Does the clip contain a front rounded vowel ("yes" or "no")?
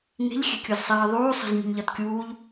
no